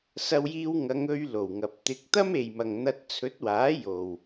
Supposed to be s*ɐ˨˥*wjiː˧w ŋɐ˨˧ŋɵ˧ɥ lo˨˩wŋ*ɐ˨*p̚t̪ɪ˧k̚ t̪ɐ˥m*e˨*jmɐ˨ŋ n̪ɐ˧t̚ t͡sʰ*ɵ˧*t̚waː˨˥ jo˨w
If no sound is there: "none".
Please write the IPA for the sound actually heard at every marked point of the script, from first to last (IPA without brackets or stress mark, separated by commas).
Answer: ɐ˧, ɐ˨, e˨, ɵ˨˥